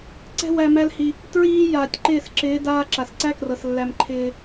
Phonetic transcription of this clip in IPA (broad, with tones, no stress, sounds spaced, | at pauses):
ǀ ɛ̤˧ w æ˧ m æ˦ l h i˧ | t ɹ iː˧ j aː˨ tʲ ǃ ɪː˦˨ s ǁ ɪː˨˦ d aː˧ ǁ a˨ s ǀ æ˦ k r ɤ˨ s lː æ˧ m ǃʰ ɪː˧